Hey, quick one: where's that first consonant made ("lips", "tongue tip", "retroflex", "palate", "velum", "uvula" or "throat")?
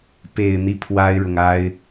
lips